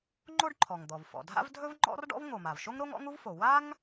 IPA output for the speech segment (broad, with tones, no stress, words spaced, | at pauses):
ŋ͡ǃo˥ɖǃʰɔ˩ŋd̪ɔ˩v fɔ̰˩dʱa̰˥v dʱɵ˥vŋ͡ǃɔ̰˥rɖɔ̰˥v ŋo˩ma˩vʃo˥ŋɾo˥ŋ ɔ̰˥ŋu˥vfo˩ wa˥ŋ